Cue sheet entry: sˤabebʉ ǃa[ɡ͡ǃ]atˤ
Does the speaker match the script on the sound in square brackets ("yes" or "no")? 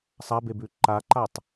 no